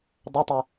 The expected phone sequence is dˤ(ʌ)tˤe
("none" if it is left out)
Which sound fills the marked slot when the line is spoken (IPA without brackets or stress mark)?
ʌ